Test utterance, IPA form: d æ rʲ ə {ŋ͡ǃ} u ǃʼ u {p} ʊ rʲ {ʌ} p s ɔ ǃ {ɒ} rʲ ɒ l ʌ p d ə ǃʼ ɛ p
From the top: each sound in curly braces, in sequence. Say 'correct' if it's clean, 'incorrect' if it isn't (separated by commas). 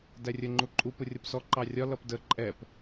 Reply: correct, correct, correct, incorrect